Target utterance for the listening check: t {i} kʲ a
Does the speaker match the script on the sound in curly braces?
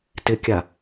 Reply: no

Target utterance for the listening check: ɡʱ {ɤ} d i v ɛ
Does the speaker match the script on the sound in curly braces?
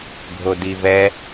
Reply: no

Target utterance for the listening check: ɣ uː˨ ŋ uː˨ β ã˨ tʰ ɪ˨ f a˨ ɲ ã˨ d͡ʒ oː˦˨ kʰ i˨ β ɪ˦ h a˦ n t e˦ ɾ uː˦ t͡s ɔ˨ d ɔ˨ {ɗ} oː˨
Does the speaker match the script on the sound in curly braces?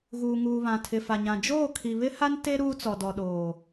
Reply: yes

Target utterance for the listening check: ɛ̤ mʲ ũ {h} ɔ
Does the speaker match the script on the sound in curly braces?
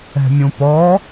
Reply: no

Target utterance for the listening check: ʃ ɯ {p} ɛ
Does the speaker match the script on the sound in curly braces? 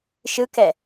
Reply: no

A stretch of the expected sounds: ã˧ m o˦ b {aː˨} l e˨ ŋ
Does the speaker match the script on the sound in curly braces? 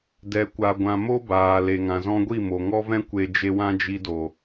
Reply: yes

